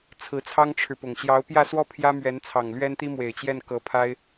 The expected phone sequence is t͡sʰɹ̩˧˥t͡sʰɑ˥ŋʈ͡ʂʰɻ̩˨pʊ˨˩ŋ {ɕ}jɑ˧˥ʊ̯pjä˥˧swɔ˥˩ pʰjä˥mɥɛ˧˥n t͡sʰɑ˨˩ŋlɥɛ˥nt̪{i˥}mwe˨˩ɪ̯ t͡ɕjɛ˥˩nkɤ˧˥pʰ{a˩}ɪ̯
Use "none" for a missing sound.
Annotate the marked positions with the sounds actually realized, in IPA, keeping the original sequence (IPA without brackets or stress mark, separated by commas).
ɕ, i˥, a˥